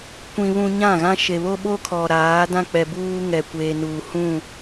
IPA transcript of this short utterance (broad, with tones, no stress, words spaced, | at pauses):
kʷĩ˦βũ˦ ɲã˦˨ɣã˦ ʃe˨βo˦ɓo˦kʰɔ˨ ɾaː˨˦dã˦k͡pɛ˨buː˦ ŋɛ˨kʷeː˨ nuː˨hũ˦˨